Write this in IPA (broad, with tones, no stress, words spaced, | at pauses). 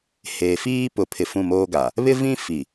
heː˨fiː˦pʊ˨˦pʰɪ˨ fũ˦˨moː˦ɡa˨ | βɪ˦vĩ˦ fi˨